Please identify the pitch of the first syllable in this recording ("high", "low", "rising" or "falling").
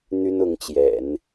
high